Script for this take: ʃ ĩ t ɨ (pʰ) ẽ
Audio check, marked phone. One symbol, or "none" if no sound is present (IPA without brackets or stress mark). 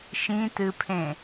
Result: pʰ